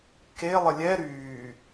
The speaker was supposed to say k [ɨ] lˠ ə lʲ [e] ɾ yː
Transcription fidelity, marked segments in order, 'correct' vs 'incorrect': incorrect, incorrect

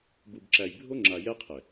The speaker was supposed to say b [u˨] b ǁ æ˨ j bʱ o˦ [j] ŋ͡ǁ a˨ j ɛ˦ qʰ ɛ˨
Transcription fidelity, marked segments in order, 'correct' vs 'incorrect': correct, incorrect

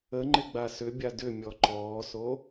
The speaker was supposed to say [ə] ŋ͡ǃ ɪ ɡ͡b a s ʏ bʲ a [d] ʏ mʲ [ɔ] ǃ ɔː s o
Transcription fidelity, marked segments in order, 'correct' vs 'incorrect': correct, correct, correct

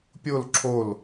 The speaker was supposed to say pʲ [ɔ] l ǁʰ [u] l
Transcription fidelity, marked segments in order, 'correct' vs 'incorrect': incorrect, incorrect

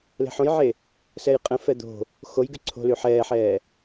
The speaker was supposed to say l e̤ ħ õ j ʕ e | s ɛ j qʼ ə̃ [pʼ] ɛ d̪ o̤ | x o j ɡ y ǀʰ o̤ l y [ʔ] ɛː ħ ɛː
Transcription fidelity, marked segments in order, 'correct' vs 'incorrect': incorrect, incorrect

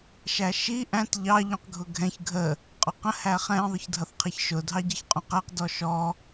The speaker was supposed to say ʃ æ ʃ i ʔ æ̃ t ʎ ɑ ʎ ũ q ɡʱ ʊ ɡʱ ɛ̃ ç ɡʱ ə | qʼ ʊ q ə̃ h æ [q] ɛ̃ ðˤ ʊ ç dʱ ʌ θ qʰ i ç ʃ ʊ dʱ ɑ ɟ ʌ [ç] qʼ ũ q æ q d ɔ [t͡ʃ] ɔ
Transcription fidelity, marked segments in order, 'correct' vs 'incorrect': incorrect, correct, incorrect

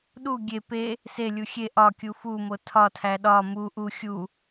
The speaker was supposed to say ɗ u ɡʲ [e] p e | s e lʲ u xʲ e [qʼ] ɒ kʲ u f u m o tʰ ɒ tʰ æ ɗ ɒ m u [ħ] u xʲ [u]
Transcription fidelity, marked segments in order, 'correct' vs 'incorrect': correct, incorrect, incorrect, correct

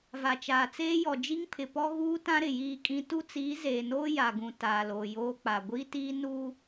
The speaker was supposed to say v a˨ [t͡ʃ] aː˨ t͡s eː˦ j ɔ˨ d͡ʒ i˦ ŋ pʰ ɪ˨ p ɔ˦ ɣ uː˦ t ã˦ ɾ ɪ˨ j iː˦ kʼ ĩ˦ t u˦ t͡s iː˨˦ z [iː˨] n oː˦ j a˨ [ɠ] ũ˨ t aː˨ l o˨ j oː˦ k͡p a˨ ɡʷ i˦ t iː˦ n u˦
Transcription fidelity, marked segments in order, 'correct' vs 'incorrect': correct, incorrect, incorrect

